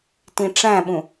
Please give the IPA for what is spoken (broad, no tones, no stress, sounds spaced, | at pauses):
t ĩ ʈ͡ʂ æ̃ ɓ ũ